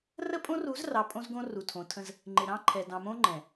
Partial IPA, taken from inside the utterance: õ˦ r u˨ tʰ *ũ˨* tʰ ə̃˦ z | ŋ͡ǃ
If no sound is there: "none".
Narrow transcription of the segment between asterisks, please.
õ˨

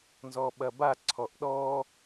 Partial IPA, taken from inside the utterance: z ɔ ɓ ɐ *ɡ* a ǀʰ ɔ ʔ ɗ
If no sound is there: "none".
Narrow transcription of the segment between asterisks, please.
b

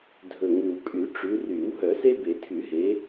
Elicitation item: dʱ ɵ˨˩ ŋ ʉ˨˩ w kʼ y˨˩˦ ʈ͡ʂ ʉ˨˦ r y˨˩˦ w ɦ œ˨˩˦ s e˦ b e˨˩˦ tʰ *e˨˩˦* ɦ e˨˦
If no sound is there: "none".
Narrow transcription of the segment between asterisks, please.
y˨˩˦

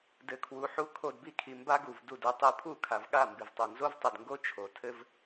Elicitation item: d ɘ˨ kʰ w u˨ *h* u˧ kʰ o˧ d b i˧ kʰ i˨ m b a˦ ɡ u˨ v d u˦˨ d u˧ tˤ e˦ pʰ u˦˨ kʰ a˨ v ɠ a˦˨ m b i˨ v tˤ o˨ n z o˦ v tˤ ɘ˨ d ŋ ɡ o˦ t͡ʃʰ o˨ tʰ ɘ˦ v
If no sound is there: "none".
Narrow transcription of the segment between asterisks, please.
ħ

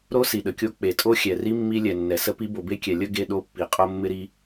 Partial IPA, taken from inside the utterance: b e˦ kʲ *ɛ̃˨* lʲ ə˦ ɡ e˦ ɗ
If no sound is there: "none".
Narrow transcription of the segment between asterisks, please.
ɛ˨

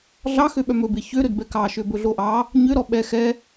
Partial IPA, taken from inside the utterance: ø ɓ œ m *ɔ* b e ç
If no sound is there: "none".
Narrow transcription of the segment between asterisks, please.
ɵ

